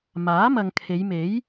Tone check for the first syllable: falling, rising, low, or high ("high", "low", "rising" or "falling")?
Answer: rising